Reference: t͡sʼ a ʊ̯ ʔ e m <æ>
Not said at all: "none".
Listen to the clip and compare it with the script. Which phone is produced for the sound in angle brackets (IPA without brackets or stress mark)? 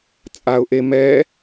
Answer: ɛ